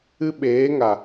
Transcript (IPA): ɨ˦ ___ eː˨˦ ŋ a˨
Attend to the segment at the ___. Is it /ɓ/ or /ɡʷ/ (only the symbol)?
ɓ